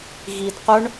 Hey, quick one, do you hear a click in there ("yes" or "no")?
no